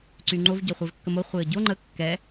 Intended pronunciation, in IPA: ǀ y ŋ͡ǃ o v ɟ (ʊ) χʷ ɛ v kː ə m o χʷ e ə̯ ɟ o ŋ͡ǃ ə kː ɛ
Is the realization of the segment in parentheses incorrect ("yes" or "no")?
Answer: yes